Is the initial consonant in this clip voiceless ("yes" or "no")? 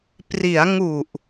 yes